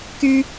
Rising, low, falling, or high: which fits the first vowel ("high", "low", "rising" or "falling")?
high